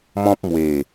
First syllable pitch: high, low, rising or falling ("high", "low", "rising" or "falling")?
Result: high